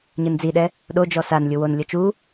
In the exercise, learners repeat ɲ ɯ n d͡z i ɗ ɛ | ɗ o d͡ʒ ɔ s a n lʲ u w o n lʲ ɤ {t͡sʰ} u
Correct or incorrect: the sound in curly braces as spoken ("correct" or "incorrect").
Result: incorrect